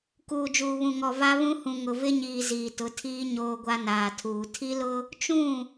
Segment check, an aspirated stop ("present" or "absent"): present